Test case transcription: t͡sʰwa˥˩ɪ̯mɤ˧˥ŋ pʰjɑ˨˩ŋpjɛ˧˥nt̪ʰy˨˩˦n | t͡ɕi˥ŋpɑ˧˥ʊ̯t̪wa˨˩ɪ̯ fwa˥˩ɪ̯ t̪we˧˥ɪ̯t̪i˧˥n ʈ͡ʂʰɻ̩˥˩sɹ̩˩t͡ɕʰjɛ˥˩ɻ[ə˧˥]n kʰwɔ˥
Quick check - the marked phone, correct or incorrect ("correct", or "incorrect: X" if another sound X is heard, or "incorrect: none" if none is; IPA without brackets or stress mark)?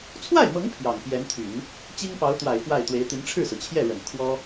incorrect: ə˨˩